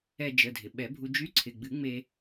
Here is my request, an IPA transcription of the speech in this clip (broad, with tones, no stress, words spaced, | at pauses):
ɛ˧ d͡ʒə˩˧˩dʱɪ˩ ɓɛ˨˩˦bʱu˧ d͡ʒy˧˥ǀʰɪ˩˧˩ɡ͡bɨ˨˩˦ ŋ͡me˧